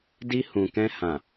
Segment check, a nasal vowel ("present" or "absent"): present